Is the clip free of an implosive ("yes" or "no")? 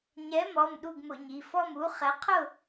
no